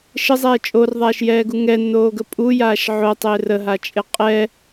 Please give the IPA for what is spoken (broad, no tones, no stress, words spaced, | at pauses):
ʃəzˤɛː t͡ʃʼorðˤaːʃjɛːɡu ŋɛnːoːɡə pʼujaːʃ ʕotˤɪː rəɦat͡ʃʼɪ qʼɛ